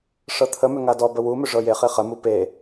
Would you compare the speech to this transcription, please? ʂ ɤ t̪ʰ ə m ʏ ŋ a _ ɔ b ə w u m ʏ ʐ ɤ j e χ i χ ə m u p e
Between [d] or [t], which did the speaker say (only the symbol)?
d